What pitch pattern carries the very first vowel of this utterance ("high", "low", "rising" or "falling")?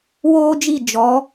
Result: high